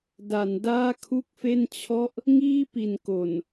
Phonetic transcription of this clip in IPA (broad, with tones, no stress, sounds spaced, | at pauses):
d a˩˦ n d aː˥˩ kʰ u˥˩ k̚ f e˥˩ n t͡ɕʰ ɔ˥˩ ʔ | ŋ iː˥˩ p i˩˦ n k o˨˩ n